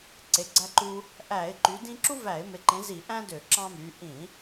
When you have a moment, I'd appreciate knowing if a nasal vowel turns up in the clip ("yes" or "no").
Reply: yes